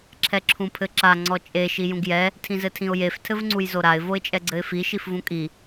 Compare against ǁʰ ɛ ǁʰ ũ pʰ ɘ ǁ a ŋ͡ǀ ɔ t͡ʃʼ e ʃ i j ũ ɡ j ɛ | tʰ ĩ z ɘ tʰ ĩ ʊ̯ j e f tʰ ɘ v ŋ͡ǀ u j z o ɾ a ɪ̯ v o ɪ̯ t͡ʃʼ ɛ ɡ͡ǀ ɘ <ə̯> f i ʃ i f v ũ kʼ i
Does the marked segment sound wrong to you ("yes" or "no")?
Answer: yes